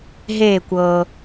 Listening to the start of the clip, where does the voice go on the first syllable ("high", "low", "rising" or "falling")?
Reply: falling